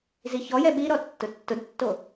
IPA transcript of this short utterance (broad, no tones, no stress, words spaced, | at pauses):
ziçɔjɛ ɓiɾɔ tːʊtːʊdtːo